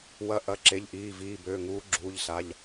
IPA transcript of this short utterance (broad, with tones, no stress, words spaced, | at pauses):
wɐ˨˦ ʔɐ˩˧˩ǁe˩˧˩ʎʔiː˩˧˩viː˩˧˩ bøː˩˧˩ŋuː˨˦ɡ͡ǁuː˩˧˩ʎsa˩˧˩ʎ